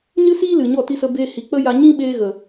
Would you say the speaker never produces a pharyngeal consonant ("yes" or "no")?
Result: yes